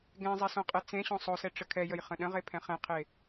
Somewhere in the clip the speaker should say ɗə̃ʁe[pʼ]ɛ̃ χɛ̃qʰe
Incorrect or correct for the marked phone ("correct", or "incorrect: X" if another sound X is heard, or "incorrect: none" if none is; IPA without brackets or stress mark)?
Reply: incorrect: pʰ